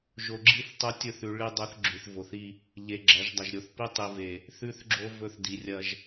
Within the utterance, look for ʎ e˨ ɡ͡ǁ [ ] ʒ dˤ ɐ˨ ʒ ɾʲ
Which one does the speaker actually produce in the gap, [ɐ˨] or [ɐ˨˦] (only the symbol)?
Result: ɐ˨˦